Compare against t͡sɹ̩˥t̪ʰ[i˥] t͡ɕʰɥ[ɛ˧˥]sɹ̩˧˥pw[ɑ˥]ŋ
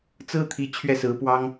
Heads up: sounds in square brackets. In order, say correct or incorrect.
incorrect: i˧˥, incorrect: ɛ˥˩, correct

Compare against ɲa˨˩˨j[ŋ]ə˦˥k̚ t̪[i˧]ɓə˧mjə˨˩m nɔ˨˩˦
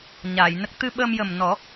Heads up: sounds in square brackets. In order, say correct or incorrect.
incorrect: n, incorrect: ɨ˧

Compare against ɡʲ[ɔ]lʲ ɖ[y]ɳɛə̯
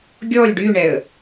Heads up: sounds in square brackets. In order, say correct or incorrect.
correct, correct

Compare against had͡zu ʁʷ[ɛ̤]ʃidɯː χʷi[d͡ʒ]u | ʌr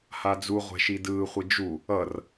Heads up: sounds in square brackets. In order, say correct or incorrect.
correct, correct

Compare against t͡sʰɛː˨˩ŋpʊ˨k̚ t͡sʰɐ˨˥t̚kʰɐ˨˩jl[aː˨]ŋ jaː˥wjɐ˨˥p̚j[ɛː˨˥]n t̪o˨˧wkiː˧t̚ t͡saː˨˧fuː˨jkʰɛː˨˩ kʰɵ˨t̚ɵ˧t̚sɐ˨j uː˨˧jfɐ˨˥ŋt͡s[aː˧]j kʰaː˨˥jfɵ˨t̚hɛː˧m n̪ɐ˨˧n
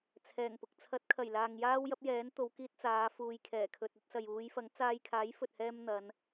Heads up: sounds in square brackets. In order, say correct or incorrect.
correct, correct, correct

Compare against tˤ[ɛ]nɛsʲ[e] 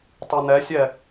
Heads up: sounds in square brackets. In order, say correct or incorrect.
incorrect: ɜ, incorrect: ɛ

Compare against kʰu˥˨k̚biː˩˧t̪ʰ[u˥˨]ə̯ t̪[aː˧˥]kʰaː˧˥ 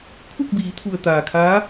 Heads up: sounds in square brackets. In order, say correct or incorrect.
incorrect: u˩, incorrect: aː˩

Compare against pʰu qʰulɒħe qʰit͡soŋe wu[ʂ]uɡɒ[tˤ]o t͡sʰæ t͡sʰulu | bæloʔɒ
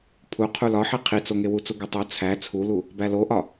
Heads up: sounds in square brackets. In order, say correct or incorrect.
incorrect: t͡s, correct

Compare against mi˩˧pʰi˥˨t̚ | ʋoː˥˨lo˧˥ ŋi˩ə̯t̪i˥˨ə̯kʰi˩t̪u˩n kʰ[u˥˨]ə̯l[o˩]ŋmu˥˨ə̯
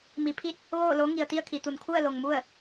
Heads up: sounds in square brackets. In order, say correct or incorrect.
correct, correct

